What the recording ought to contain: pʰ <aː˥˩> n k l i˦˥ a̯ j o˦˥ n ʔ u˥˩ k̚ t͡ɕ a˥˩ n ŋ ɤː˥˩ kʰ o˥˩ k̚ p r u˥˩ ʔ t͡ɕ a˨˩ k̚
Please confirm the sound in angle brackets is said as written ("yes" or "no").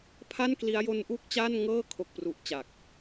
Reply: no